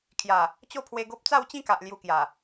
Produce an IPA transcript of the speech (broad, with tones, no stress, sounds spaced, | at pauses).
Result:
kʰ j a˨˩ | t͡ɕ o˥˧ pʰ w e˧ ɡ o˦ p̚ t͡s a˥˧ w t͡ɕ ĩ˥˧ k a˨ ʔ l j u˧ k j a˨˩